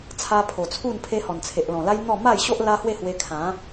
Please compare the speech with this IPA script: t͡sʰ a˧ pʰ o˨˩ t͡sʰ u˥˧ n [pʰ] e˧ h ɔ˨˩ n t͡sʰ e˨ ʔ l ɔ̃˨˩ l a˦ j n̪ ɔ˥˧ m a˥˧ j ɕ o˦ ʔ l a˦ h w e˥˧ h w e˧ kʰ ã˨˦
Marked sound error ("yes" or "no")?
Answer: no